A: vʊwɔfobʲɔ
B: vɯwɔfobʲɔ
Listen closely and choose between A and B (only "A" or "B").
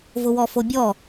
A